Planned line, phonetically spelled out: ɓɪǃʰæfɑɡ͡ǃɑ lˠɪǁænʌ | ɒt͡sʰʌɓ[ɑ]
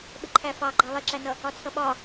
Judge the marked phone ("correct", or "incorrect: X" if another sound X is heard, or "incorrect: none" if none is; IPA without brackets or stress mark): incorrect: ɒ